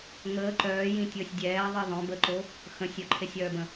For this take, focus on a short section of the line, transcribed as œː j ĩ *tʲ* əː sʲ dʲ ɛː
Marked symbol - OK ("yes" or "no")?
yes